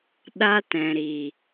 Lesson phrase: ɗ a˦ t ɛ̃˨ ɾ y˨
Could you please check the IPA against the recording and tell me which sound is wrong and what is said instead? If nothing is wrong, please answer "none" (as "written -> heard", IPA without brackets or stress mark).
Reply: y˨ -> i˨